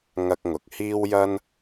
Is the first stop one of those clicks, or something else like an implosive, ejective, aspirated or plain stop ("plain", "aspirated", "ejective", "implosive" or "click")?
plain